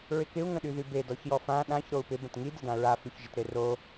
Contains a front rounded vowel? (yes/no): yes